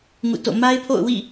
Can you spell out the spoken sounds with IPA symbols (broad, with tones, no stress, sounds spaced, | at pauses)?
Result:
ŋ ṵ˦˨ t o̰˦˨ m a˦ ɪ̯ pʰ o̰˦˨ ʊ̯ w ḭ˦˨